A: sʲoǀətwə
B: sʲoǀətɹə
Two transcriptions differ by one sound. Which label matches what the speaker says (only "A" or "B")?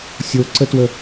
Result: A